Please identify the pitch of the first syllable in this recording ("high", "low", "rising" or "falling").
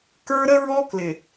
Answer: high